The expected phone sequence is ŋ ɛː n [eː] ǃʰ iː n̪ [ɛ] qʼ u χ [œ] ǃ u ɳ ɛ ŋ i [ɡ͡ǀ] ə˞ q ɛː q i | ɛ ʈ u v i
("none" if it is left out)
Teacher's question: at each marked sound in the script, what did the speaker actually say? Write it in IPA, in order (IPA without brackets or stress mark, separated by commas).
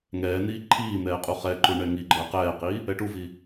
iː, ɛː, ɛ, ɡ͡ǃ